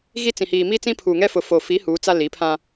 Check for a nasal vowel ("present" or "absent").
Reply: present